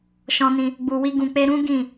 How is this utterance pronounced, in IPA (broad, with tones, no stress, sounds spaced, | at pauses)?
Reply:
ʃ ɔ̃˧ n ĩ˧ | ɡ͡b u˨ w i˧ ɡ ũ˨ k͡p e˧ ɾ ũ˦ ɡ ĩ˦˨